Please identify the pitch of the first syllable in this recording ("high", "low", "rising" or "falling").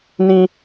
high